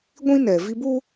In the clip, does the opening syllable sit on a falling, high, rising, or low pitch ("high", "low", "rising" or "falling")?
high